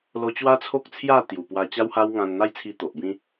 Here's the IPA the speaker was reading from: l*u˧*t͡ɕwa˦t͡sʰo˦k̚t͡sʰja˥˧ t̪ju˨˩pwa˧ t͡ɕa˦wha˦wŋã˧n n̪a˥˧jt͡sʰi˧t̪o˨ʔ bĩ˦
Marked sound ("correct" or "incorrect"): incorrect